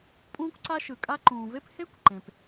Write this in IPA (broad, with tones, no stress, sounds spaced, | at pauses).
pʼ ũː˥ kʷ ǀ a˥ ʃ ɯ˨ kʼ a˥ ǃ ũː˨ v e˥ p h e˥ kʷ ǃ ẽ˨ p